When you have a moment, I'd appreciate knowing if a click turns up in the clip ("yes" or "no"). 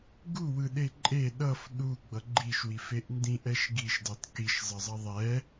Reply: yes